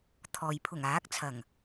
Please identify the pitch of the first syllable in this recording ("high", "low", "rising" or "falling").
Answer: low